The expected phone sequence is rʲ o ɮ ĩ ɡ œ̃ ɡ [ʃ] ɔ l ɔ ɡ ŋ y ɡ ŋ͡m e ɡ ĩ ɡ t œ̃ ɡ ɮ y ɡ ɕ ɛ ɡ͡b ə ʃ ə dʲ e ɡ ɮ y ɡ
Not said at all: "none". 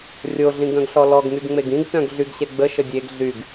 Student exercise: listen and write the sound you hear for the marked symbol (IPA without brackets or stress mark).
ɬ